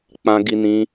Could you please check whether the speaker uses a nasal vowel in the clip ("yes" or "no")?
yes